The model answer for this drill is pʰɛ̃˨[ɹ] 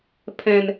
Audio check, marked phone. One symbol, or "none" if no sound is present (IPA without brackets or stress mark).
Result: n